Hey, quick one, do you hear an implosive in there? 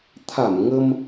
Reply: no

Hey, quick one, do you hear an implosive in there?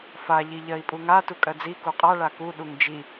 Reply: yes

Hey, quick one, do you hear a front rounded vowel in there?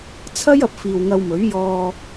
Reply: no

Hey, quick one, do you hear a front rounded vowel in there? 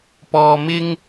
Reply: no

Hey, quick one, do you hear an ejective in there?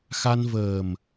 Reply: no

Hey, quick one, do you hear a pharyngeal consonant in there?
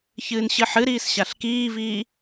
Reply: yes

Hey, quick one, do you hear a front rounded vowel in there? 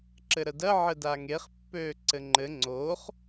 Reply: yes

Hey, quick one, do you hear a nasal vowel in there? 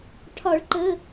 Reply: no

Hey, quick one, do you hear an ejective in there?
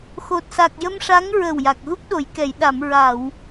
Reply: no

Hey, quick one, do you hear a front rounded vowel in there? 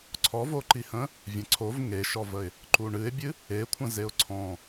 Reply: no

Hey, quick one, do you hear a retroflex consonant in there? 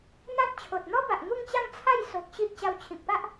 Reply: no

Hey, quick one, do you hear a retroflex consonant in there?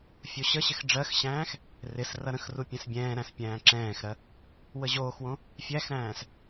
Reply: yes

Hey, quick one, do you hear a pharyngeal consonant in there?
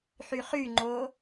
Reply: yes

